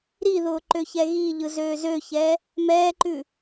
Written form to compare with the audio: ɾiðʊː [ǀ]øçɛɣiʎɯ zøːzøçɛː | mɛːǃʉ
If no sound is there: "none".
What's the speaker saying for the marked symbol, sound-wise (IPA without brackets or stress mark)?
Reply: ǃ